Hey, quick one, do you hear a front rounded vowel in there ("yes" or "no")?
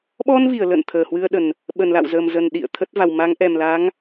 no